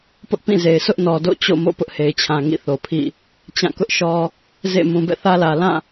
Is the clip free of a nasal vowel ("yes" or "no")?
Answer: no